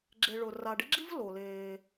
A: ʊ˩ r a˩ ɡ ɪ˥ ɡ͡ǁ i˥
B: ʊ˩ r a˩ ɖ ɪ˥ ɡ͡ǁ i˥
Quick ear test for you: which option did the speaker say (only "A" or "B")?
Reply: B